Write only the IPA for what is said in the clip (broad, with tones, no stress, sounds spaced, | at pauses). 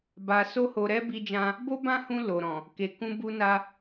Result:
b a˧ s o˦ h o˧ ɾ ɛ˦ b i˧ d͡ʒ ã˧ | b o˦ b ã˦ h ũ˧ l o˨ ɾ ɔ̃˨ | k e˧ k ũ˦ b u˦ n a˦